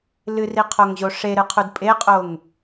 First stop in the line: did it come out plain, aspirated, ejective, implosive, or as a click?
aspirated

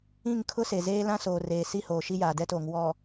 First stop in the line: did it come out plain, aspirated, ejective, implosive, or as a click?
aspirated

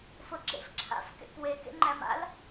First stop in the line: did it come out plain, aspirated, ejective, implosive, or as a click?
click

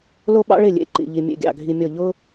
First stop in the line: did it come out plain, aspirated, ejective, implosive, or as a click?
implosive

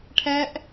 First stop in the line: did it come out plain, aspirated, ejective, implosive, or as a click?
aspirated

